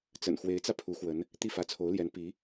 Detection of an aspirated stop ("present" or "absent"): present